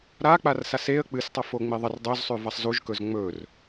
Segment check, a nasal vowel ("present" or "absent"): absent